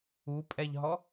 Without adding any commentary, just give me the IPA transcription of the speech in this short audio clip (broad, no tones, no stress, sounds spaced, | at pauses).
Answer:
u pʼ ɛ ʎ ɦ ɔ